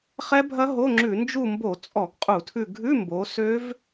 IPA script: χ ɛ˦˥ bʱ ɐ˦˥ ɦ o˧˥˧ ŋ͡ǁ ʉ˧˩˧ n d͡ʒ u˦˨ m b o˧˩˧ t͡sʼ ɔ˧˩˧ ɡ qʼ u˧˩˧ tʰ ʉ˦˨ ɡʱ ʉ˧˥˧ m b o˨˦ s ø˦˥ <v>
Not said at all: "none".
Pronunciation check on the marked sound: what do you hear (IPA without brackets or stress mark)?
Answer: v